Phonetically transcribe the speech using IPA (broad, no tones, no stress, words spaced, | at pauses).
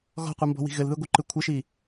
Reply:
ɣɔ̤qʷɯmbɔ̤wi̤ ɣɘlðɯɡʷɯǃɯ kʷʰɘʃi